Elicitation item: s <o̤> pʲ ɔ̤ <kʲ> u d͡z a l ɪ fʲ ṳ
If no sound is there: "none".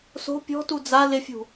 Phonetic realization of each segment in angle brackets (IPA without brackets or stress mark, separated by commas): o̤, t